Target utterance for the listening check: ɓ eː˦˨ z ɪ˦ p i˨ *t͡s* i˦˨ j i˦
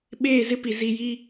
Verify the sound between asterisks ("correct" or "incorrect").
incorrect